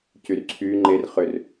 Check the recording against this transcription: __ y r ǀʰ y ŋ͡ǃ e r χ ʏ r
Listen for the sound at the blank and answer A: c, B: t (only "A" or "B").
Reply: A